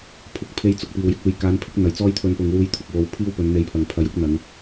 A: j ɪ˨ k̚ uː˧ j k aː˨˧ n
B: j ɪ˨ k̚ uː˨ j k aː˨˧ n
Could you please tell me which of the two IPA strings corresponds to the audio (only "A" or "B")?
B